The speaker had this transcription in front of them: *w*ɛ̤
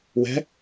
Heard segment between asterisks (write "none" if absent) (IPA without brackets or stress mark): w